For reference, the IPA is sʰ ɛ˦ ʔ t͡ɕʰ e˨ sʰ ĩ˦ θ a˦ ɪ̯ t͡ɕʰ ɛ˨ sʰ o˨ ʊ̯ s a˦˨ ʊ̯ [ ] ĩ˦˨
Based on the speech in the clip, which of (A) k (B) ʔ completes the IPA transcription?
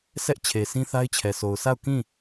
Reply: A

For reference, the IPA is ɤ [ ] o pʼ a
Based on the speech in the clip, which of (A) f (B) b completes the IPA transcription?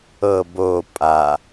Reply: B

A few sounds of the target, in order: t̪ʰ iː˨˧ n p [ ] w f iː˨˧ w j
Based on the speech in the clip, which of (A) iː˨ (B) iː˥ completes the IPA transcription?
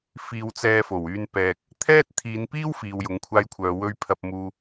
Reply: B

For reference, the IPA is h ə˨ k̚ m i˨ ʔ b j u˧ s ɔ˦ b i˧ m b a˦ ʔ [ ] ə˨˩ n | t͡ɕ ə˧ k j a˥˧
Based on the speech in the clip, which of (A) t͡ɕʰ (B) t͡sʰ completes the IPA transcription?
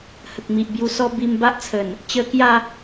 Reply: B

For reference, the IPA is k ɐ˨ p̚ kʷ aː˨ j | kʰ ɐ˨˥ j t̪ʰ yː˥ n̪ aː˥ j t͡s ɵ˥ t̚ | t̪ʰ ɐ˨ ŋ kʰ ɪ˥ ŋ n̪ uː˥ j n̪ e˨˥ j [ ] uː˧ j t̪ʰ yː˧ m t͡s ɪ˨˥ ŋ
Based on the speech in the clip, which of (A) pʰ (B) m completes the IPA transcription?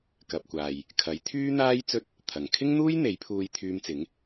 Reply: A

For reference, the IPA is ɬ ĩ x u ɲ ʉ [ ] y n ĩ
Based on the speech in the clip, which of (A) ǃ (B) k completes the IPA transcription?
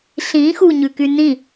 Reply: B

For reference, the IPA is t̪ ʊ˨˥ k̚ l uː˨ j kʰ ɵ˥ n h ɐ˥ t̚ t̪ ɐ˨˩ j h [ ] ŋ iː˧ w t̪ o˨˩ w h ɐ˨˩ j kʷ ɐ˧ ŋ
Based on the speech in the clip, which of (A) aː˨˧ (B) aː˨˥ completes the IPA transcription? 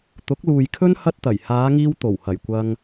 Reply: A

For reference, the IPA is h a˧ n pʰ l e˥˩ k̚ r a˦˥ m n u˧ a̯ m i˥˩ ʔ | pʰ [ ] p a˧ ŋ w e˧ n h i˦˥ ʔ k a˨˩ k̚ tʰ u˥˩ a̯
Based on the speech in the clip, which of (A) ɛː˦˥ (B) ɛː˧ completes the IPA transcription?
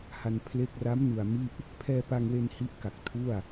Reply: B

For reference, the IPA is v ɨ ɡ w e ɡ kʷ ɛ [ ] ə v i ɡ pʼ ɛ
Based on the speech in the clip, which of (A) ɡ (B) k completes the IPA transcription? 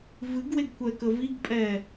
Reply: B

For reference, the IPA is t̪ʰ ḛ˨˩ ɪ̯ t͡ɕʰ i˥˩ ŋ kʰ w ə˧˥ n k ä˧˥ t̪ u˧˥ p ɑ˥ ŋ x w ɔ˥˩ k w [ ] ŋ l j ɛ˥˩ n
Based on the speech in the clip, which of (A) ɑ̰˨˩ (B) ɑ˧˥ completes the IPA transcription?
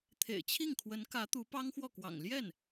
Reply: A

